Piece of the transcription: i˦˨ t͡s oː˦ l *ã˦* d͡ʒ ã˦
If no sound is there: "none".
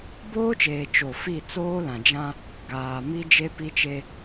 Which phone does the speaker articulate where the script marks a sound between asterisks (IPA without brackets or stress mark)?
ã˨